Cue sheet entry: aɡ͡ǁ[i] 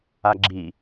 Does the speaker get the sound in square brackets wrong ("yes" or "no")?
no